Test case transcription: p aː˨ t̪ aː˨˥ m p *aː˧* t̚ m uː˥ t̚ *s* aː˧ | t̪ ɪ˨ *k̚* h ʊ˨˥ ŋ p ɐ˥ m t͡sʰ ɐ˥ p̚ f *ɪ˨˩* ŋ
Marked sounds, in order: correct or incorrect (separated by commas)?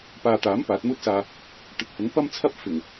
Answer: incorrect, correct, correct, correct